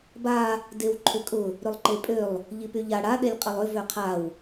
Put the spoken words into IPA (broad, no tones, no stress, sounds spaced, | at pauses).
b a | d e w ǃʰ ʏ kʼ ʊ | ɾ ʏ lˠ ǃ e pʼ ø lˠ | ʎ i p y ʎ a ɽ a ɗ e lʲ qʼ ə lˠ ʏ v ø qʰ a w